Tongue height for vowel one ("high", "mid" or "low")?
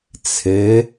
mid